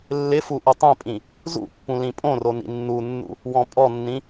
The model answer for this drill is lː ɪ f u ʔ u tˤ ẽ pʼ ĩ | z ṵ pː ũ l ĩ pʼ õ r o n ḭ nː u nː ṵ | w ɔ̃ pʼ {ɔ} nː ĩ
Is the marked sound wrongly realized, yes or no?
no